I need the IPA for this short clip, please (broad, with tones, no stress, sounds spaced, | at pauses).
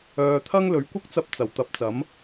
œː˧ t̪ʰ ɐ˥ ŋ l ɵ˨˧ ɥ kʷ ɐ˥ k̚ t͡s ɐ˧ p̚ t͡s ɐ˨˩ w t̪ ɐ˧ p̚ t͡s ɐ˨˥ m